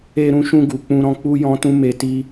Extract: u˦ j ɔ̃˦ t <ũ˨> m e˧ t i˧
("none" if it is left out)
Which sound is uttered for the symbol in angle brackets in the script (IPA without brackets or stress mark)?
ũ˦